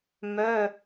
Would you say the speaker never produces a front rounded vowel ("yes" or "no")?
no